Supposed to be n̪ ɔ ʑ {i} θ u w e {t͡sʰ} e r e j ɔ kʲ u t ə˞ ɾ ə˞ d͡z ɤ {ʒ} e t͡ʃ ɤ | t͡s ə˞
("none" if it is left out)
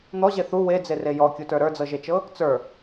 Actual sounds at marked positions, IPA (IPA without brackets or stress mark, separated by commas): e, d͡z, ʒ